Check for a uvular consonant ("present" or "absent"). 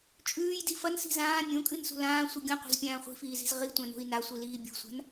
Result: present